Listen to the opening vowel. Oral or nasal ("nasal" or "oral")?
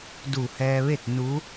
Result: oral